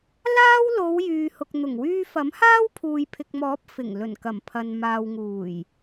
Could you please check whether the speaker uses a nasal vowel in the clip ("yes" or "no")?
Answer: no